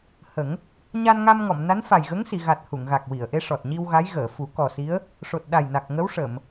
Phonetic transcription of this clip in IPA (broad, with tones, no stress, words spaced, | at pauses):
hə˨˩˦ŋ | ɲa˧nŋa˧mŋɔ˨˩˨m na˧˥nfa˨˩jɣə˧˥ŋ si˨˩˨ɣa˨˩t̚ hu˨˩˨ŋɣa˨˩k̚wi˨˩˨ə̯ʔe˧˥ ʂɔ˨˩t̚ɲi˧wɣa˧˥j ɣəː˨˩˨fu˨˩˦ kɔ˨˩si˧˥ə̯ | ʂo˨˩t̚ɗa˨˩j na˨˩k̚ŋə˧˥w ʂə˨˩˨m